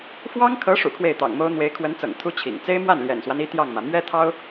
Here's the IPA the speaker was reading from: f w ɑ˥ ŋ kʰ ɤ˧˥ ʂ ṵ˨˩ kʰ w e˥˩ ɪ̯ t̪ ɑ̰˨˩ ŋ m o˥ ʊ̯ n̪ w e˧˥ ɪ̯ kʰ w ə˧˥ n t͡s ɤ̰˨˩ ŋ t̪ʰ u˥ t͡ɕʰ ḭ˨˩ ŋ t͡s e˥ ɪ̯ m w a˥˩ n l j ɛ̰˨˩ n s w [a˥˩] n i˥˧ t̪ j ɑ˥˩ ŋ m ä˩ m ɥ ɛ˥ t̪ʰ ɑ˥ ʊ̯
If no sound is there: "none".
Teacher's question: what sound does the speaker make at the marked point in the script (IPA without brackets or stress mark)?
a˦